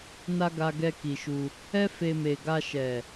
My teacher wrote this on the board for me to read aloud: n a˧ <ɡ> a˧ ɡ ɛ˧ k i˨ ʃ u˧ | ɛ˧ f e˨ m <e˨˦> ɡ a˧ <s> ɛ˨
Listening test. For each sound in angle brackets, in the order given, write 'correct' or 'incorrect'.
correct, incorrect: e˨, incorrect: ʃ

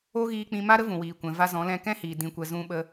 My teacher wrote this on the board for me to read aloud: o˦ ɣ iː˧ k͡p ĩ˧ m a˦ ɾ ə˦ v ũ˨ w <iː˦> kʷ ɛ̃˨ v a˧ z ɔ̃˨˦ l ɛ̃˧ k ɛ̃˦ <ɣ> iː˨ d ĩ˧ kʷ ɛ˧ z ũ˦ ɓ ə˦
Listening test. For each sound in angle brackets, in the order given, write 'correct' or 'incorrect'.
incorrect: iː˨, incorrect: h

